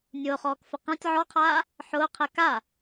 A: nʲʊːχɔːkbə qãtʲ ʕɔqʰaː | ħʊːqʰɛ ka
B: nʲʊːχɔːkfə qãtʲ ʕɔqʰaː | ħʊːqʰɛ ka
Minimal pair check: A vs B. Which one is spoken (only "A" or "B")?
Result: B